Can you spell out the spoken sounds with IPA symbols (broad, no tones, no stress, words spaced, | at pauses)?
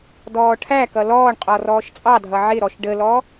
dɔːʈʰækʌ lɔːɳqʼɔ rɔːʃt͡sʼɑdʱʌ ʕɪɾɔʃ ɖəlɔ